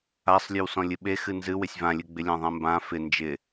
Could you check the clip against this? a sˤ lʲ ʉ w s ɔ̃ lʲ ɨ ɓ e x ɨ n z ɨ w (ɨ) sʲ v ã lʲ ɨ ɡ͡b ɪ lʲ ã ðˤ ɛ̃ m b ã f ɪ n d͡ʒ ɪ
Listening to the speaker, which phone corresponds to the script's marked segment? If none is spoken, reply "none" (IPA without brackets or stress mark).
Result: ɪ